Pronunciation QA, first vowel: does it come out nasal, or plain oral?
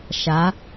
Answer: oral